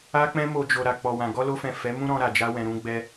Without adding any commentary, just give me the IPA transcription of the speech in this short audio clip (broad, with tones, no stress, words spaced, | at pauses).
a˧k͡pɛ̃˧mo˨ d͡ʒo˨ ɾa˨k͡pɔ˨wã˨ ɡɔ˧lo˧fɛ̃˨ fɛ˨˦mũ˦ ɾɔ̃˧ɾa˨d͡ʒa˧wɛ̃˨ ɾũ˨˦ɡ͡bɛ˦